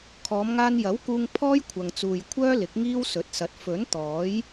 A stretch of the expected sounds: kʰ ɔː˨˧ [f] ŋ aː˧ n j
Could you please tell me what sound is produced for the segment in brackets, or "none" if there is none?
m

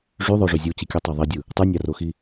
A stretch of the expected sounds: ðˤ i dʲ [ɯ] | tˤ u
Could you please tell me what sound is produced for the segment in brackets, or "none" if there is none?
ɯ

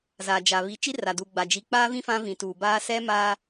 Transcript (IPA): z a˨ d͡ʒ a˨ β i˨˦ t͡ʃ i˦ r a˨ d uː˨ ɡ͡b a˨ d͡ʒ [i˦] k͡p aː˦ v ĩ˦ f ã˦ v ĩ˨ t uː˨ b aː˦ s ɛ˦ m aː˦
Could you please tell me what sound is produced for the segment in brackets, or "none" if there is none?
i˨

